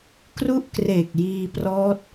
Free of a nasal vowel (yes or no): yes